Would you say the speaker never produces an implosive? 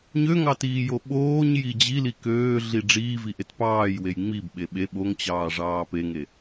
no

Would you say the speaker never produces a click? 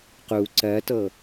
no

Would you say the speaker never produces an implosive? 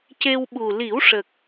no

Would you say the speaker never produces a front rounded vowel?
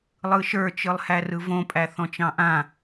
yes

